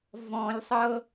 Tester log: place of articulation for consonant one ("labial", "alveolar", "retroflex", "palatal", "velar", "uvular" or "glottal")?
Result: labial